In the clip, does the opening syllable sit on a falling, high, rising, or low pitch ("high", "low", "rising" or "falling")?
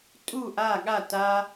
falling